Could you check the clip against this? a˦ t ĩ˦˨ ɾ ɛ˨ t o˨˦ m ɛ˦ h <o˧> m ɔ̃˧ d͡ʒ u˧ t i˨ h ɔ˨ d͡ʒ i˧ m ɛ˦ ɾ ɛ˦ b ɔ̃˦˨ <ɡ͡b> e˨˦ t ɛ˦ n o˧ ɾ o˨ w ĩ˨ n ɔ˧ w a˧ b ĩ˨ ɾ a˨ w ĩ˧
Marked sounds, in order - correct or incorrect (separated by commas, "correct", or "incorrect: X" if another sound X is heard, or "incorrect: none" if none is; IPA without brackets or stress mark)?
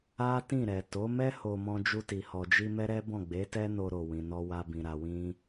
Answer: correct, correct